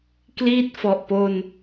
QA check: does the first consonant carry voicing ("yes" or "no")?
no